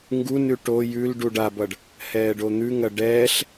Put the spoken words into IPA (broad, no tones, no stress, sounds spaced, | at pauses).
ŋ ɡ u n ʉ ʈ o j ʉ l ɖ u ɖ a b ʌ ɖ | h ɛː ɖ o n̪ ʉ ŋ ɐ ɖ ɛː ɬ